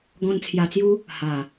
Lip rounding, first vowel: rounded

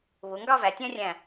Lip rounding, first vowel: rounded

